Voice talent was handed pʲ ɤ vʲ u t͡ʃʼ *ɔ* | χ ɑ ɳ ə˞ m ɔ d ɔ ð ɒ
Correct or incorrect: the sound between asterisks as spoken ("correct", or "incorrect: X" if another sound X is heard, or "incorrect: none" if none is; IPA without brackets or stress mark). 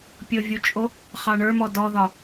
incorrect: o